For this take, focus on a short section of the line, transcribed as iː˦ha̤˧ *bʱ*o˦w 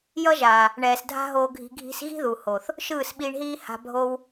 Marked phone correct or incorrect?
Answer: correct